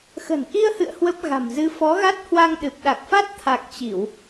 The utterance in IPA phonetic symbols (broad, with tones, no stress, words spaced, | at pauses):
xə̤˨˩nʔi˧ə̯hɨ̰˧˨ə̯ hwə˦˥p̚ɣa̤˨˩mzɨ˧ fɔ˨˦ɣa˦˥t̚hwa˧ŋ ɗɨ˨˩p̚ɗa˨˩k̚fa˦˥t̚ t̪ʰa˨˩k̚ t͡ɕi˧˩˨w